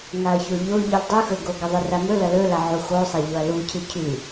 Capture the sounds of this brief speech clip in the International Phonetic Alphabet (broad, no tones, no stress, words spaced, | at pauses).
ŋaɐ̯çoʎo ʎɨldˤʉxɵɡo ɡɐðˤɨramɵ lɐlɵlaʕu xosˤaʎoɐ̯ lucʰɨ cʰʉ